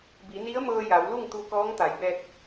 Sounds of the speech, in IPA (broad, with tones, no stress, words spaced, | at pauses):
bi˩˧ni˧˥ə̯mɤː˧ ja˩˧wlu˥˨ŋt̪u˧kɔː˧˥ŋ t̪a˩˧jbɛː˧t̚